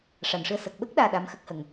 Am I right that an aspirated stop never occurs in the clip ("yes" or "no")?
yes